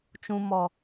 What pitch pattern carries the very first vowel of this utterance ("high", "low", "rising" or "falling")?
low